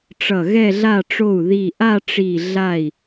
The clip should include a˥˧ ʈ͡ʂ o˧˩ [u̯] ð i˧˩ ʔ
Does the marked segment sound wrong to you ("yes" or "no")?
no